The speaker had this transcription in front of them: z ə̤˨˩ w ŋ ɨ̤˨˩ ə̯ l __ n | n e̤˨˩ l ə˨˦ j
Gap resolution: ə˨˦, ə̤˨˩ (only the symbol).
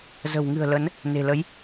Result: ə˨˦